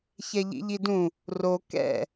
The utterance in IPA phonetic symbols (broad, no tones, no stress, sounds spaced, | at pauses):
ç ɛ ʎ ḭ ʎ i d ũ | r o k ɛ̰